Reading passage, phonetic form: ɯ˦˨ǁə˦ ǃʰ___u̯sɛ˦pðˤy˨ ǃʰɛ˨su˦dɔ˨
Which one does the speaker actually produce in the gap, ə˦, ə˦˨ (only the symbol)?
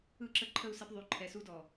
ə˦˨